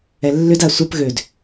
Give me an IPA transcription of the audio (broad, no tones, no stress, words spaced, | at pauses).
ɛlːʏda sʷap ɣød